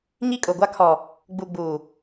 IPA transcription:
ɲ i˦ kʼ ʊ˨ ɡʷ a˦ kʰ ɔ˨ | ɡ͡b u˨ ɡ͡b uː˨

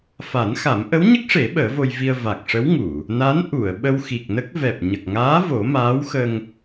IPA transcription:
f a˨˩˦ n x a˨˩˦ m ʔ ə˧˥ w ɲ ə˦˥ k̚ ʂ e˨˩˦ ɓ əː˨˩˦ v o˧ j v i˧ ə̯ v a˨˩ k̚ ʂ ə˧˥ w ŋ u˨˩˨ | n a˧˥ n ʔ u˨˩˨ ə̯ ɓ ə˧ w x i˨˩ k̚ n ə˦˥ k̚ v ɛ˨˩ p̚ ɲ ə˨˩ k̚ ŋ aː˧˥ v o˨˩˦ m aː˧˥ w x ə˧ ŋ

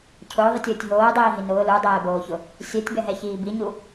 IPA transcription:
cʰ ʊː ðˤ i tʲ ʊː tʲ ɦ oː dˤ iː ɦ i n ʊː l u dˤ ɛː b oː ç ʊ | sʲ ɛ tʲ b ɛ ɦ ɛ ç iː b i ɲ u

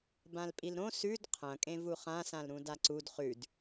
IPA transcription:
b ã l pʼ i l ɾ õ s ʉ d qʰ ɐ̃ kʼ ẽ v u χ ã s ã l ɾ ũ d a ǀ u d χ ʉ d

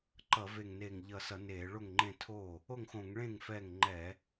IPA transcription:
ǃ ʌ˧˩˧ v e˧˩ ŋ n e˧˩ ŋ ʎ ʌ˧˩ s ʌ˧˩˧ n eː˧˩˧ ɭ o˥˩ ŋ ŋ͡ǃ ẽ˥˩ tʰ oː˥˩ | o˥˩ ŋ x õ˧˩˧ ŋ ɭ ẽː˥˩ ŋ f ɛ˥˩ ŋ ŋ͡ǃ ɛ˧˩˧

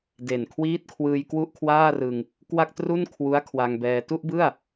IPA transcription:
d e˨˩ n kʰ w iː˦˥ t̚ kʰ w ɯː˧ j k w u˥˩ ʔ kʰ w aː˥˩ r ɯ˧ ŋ | k w a˥˩ k̚ t r u˥˩ n kʰ w u˦˥ a̯ kʰ w a˧ ŋ b ɛː˧ t u˥˩ ʔ b ɯ˥˩ a̯

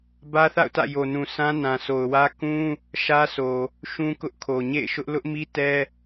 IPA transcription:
b ä˦ θ a̰˦˨ ʊ̯ t ä̰˦˨ j o˨ n ũ˨ sʰ ã˦ n ã˨ s o˨ ʊ̯ w ä˦ k ũ˦ | ʃ ä˦ sʰ o˨ | ʃ ũ˦ k ʊ˦ ʔ kʰ o˨ ɲ ḛ˦˨ ɪ̯ ʃ ʊ˦ ʔ l ʊ˦ ʔ m i˦ t ɛ˦

